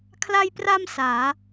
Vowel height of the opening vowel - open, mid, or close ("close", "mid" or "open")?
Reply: open